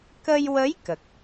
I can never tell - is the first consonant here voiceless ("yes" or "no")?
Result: yes